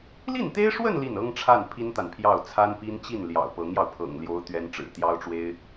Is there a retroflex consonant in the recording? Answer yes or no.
yes